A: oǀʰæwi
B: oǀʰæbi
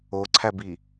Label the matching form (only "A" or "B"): B